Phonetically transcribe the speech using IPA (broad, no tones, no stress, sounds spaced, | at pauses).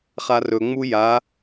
χ a r ɵ ŋ͡m u j a